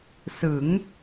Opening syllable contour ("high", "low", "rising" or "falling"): rising